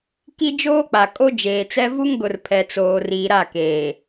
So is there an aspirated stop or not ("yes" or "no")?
yes